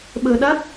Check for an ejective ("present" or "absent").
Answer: absent